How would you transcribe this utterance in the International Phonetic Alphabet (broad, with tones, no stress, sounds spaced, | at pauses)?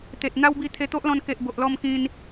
t̪ e˨ t̚ n̪ a˦ w b i˧ t̪ʰ e˧ t̪ o˦ ʔ l ɔ̃˧ n k e˨ ʔ b o˨ ʔ l ɔ˧ m k ĩ˧ n